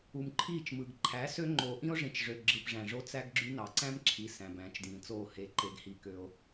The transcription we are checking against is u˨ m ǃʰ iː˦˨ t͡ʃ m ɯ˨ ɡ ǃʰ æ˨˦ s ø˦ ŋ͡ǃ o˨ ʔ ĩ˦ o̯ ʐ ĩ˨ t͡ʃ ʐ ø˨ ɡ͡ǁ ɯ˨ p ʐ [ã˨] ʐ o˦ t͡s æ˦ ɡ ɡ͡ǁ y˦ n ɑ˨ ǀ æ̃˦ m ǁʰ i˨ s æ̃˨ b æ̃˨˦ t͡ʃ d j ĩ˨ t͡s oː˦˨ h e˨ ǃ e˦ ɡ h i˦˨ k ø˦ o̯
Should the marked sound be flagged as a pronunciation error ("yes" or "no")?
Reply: yes